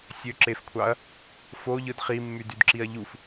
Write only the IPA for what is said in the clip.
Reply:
sʲøǁefkʷʰɑɐ̯ | foʎɯd χimːydydǁiɐ̯ ʎuf

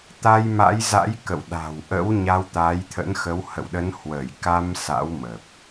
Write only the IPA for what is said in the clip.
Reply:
t̪a˧jma̰˧˥jza̰˧˥j kə̰˧˨wɗa̤˨˩wʔə̰˧˥w ɲa˧wt̪a˨˦jt̪ʰə̰˧˥nxə˨˦w hə̰˧˨wɗə˨˦nhwəː˧˩j ka˧m sa̰˧˥wmə˨˩p̚

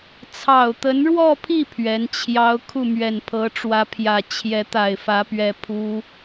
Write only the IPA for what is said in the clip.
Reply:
t͡sʰɑ˨˩ʊ̯t̪ə˧˥nɻwɔ˥˧pʰi˥˩ pʰɥɛ˧˥nt͡ɕʰjɑ˥ʊ̯ kʰu˥˩mɥɛ˨˩npʰɤ˧˥ʈ͡ʂwä˧˥ pʰjä˨˩t͡ɕʰjɛ˧˥t̪a˨˩ɪ̯ fä˧˥pɥɛ˧˥ pʰu˥

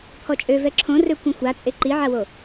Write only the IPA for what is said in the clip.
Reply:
pʰɔt͡ʃʼø vɛǁʰõrø kʷɛ̃xʷat͡sʼe ǃiʕawo

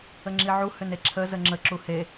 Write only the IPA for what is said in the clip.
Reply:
əŋ͡ǁiʕu hʏneǁʰə zəŋ͡ǁə ǁuhe

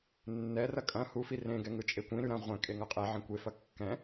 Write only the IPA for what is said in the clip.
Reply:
nːɛrɐ kʼɐ̃ hufi rẽɡɛ ŋɯt͡ʃʼekʷĩɾʉ ɾɐ̃ ʁʷɛ̃ kʼeŋʌqʼɛʕɐ̃ kʷefɐ kːɛ̃

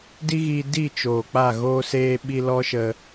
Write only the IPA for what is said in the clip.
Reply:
di˦ɣiː˧ di˦˨ t͡ʃoː˨k͡pa˦˨ ɣoː˧seː˧ɓi˧ lɔ˦ʃə˧

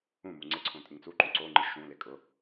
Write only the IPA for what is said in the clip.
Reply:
ũmu ŋ͡ǀɪǀʰõ tʼɪŋt͡suǃõ ǀoŋ͡ǃɪ ʃũlɪ kʼʊ

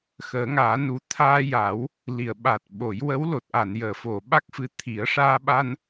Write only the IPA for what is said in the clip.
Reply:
xəː˨˩˦ŋaː˨˩˦nu˨˩ t̪ʰaː˧ja˨˩˦w | li˨˩˨ə̯ɓa˨˩t̚ ɓo˨˩˦j wə˧˥w lo˨˩t̚ʔa˨˩˨njəː˨˩˨fo˨˩˨ ɓa˦˥k̚fɨ˧˥ t̪ʰi˨˩˦ə̯ʂaː˧ɓa˧n

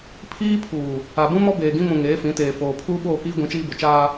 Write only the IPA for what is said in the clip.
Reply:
pʰiː˦pʰuː˨ | a˨bũ˦mɔ˦ beː˨ɡĩ˦ mũ˨ ŋeː˨˦fĩ˨˦teː˨ foː˨ pʰuː˦ɓoː˦˨kiː˦ ɡʷĩ˨˦t͡ʃiː˦bʊ˨ t͡ʃaː˦

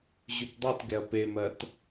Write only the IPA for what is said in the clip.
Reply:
ʑytdˤutɡɛɐ̯ pemɜt

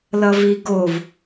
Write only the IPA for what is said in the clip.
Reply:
lʌviɡov

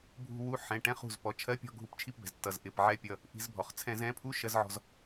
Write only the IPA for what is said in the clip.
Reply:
bʱṳ˦˨ wu˨˥ ħɛ̃˩˧˩ʈɛ̃˧˥˧χṳ˩˧˩z pɔ˩˧˩t͡ʃʰɜ˧˥˧pʲɔ̤˦˨ ɡʱu˧˩˧pt͡ʃʰi˦˨pbɛ̤˩z tːʌ˩z ʔɪ˩˧˩pʕɛ˨˥ pʲʌ˩˧˩ | ʔi̤˧˩˧zbʱɔ˩χ t͡sʰɛ̃˧˩˧z ɛ̃˨˥pʰu˧˥˧ ʃɜ˧˥˧zʕɔ̤˦˨z

